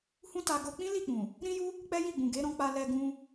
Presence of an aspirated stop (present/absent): absent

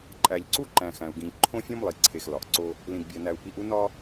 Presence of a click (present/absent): present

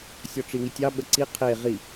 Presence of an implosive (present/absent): present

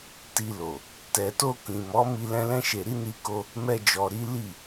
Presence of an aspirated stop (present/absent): absent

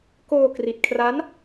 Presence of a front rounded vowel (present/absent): absent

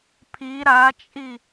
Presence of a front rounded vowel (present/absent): absent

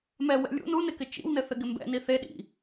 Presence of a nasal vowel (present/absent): absent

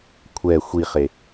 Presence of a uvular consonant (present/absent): present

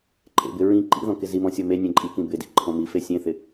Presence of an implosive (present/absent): absent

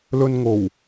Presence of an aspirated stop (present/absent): absent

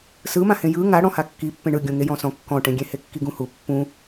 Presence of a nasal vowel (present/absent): present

